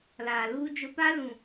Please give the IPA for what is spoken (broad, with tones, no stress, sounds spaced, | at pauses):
l aː˨ l uː˦ d͡ʒ o˦ p a˦ l ũ˨